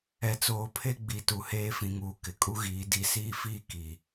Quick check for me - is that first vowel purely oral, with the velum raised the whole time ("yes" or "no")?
yes